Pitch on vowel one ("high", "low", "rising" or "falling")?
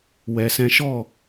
low